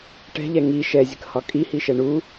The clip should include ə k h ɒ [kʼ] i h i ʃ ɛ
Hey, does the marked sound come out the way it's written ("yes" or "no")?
yes